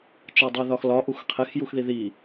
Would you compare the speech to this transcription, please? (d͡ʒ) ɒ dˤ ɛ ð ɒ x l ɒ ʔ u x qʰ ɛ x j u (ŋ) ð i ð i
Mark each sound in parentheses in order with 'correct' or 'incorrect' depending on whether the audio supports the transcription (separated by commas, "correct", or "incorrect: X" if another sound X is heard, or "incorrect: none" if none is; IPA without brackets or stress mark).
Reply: incorrect: t͡ʃ, incorrect: x